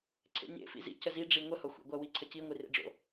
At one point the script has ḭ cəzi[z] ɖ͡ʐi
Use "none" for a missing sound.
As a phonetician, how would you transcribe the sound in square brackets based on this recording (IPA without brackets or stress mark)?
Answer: none